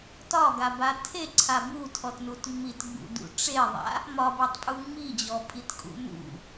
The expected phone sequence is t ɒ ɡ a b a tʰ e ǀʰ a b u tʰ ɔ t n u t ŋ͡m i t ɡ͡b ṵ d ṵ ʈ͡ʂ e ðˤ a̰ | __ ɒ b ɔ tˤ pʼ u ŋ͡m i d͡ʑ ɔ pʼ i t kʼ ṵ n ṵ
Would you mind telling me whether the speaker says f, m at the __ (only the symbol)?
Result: m